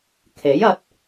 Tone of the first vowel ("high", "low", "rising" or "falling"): rising